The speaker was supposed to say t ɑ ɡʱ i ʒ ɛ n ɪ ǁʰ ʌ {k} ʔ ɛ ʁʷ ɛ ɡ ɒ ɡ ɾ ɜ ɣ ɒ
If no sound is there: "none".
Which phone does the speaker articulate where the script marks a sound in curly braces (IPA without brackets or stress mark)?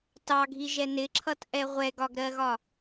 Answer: t